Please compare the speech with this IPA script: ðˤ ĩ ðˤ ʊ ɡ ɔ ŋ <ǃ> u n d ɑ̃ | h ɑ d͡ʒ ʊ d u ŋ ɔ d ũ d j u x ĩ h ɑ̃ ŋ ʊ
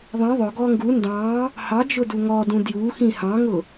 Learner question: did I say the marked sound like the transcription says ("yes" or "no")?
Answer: no